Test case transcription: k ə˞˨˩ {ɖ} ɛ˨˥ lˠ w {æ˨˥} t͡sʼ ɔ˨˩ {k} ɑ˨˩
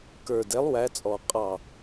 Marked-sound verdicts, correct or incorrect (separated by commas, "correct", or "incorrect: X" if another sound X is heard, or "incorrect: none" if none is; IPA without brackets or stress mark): incorrect: d, correct, incorrect: qʼ